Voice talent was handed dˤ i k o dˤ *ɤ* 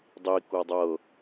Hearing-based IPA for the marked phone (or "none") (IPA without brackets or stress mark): ɤ